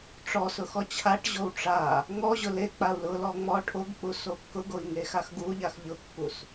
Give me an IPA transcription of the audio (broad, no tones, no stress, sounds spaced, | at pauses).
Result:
ʈ͡ʂ ɔ s ʊ x ɔ t͡ɕʰ a ʈ ʑ o w ʈ͡ʂ a | ŋ ɔ ʑ ʊ l e k͡p a u̯ l ʊ l ɔ ŋ͡m ɔ ʈʰ o ɡ k͡p u s o kː ʊ ɡ o i̯ ŋ e x a x ɡ u ʎ a x ʎ ʊ kː u s